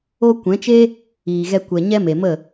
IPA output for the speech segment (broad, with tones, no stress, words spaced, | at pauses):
o˧ kʷɛ̃˨˦t͡ʃe˦ | iː˨ɣɛ˧ kʷɛ˨ ɲɛ˦me˨mə˦˨